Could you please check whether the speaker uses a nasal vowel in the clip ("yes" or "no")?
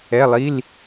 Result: no